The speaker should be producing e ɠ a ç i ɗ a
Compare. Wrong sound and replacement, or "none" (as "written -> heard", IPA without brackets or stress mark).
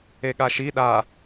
ç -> ʃ